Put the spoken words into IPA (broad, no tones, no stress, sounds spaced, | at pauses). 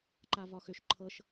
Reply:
ǃ a v ɒ x ʏ ʃ ǃʰ ɤ ʃ